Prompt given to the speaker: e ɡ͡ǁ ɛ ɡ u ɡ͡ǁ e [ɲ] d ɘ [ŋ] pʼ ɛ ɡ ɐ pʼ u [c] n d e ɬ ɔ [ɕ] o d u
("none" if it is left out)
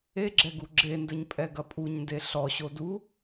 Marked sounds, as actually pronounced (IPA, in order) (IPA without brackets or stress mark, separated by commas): n, ɲ, ɲ, ɕ